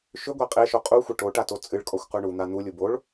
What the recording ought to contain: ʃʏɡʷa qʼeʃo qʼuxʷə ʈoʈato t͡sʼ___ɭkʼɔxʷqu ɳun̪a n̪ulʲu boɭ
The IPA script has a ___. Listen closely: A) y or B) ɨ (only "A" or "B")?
B